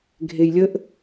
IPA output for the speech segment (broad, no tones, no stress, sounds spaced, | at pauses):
ɡʱ e j lʲ ə ʔ